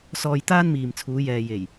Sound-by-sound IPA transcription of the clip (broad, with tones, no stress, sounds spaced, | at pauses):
s ɔː˧ j t̪ aː˥ n m iː˨ m t͡sʰ uː˨˧ j ɛː˨ j e˨˩ j